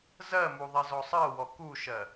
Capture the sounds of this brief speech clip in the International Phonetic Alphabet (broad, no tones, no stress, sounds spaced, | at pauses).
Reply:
z ɜ m u ðˤ i z ɔ sˤ ɜ w ɔ k u ʃ ɜ